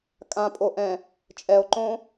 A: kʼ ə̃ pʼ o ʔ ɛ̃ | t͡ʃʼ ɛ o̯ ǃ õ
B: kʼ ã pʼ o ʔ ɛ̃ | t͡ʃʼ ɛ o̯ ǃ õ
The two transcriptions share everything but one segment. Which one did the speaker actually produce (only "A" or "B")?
B